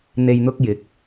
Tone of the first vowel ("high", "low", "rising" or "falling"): low